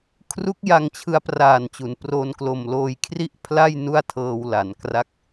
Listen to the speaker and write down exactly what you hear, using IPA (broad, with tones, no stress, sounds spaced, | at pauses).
kʰ r u˦˥ k̚ j a˧ ŋ t͡ɕʰ ɯ˧ a̯ p r aː˨˩ n t͡ɕ u˩˦ n p r o˧ n k l o˨˩ m l oː˧ j kʰ r i˥˩ ʔ pʰ l a˥˩ j n u˥˩ a̯ tʰ ɤː˧ w l a˩˦ n k r a˦˥ k̚